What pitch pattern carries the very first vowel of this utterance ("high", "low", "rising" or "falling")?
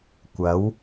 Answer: rising